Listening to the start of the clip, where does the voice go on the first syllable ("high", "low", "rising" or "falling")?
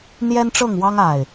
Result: high